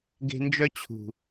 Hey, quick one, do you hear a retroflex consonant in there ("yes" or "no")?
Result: no